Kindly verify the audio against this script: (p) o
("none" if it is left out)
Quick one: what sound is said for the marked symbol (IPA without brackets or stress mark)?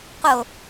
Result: q